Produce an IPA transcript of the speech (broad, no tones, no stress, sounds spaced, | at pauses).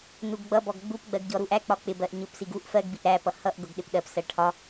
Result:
n u ɡ ɡ͡b ʌ b ɔ ɡ ɡ͡b u p ɡ͡b ɜ ɡ ɟ ɔ ɾ u ʔ æ k͡p ɒ k͡p ɪ b ɜ ʔ ɲ ʊ p s i ɡ u ʔ f ɜ ɡ b i ʔ ɾ æ p ʌ h ʌ ʔ ɡ ʊ ɡ ɗ ɪ p ɗ ɜ p s ɜ ʈʰ ɒ